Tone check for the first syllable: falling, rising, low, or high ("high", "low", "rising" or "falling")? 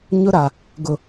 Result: high